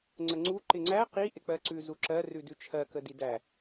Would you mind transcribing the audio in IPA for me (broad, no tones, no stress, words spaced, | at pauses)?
ŋ͡ǀəŋ͡ǀu ǃɪŋ͡ǀæ qi ʔɪk͡pɜǀʉ zuǁɜ rʉdʉt͡ʃʰɜ kədidæ